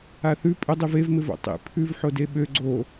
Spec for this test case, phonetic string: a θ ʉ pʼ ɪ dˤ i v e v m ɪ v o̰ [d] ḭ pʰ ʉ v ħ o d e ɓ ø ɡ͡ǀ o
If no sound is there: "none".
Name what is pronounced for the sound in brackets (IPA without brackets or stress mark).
tˤ